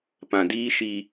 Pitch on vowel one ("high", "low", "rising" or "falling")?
low